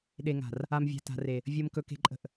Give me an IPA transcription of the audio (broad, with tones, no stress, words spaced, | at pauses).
ɗe˨ŋa̤˨r | a˨mvʲa̤˨ ta̤˨re˨ | vʲɤ˨m kɵ˨ke̤˨ ǃʼə̤˨ʔ